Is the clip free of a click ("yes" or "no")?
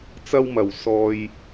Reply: yes